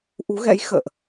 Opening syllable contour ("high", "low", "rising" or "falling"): rising